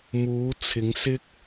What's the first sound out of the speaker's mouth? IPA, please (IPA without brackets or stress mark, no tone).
m